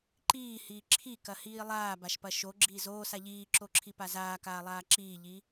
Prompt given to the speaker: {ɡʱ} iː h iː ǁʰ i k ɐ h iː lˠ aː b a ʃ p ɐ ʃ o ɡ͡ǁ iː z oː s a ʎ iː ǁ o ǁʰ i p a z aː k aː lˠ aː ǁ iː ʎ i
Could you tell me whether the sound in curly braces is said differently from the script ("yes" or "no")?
yes